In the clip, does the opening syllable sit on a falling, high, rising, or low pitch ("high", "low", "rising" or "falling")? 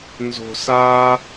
low